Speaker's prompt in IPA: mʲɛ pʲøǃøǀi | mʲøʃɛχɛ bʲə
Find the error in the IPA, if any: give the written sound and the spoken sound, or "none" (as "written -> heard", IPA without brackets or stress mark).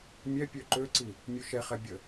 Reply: none